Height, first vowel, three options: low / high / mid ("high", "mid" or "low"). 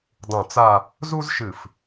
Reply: high